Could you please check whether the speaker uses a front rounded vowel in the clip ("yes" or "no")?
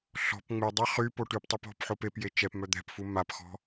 yes